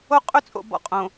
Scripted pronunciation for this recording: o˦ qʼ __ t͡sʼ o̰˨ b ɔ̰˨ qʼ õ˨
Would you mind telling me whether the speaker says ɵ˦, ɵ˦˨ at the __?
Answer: ɵ˦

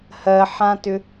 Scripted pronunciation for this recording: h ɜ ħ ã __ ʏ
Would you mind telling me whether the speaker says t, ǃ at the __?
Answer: t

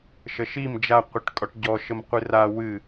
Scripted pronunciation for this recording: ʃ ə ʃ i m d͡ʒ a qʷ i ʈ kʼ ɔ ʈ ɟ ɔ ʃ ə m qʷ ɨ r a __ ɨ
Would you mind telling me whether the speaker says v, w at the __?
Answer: w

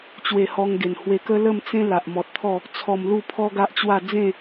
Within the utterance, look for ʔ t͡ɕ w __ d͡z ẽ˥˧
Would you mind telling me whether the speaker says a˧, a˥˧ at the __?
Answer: a˥˧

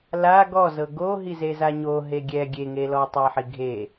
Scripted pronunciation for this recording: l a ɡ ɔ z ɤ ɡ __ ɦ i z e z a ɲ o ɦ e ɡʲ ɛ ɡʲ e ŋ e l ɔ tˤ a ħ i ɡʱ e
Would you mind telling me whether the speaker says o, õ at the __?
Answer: o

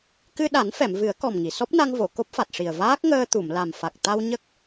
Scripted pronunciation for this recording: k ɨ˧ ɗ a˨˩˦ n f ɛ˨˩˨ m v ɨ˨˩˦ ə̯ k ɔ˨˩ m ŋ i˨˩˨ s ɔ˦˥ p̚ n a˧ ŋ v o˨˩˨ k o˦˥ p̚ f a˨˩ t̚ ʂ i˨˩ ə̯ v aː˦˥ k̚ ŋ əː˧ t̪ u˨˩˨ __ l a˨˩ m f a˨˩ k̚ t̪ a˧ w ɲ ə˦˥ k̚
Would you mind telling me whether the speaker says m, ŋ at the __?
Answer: m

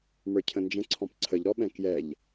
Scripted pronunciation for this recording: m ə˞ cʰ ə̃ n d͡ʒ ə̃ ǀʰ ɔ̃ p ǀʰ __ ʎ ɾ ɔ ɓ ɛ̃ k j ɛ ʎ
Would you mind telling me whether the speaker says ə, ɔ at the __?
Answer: ə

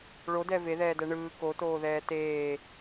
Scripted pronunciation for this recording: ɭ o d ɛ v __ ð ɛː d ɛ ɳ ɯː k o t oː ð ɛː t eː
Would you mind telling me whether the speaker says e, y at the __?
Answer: e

